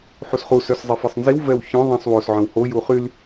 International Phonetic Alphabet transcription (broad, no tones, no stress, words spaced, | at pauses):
ħusχu sœszˤefisˤnziw vɛwçœ̃ ðˤĩsˤ wos ʕœ̃who juχyl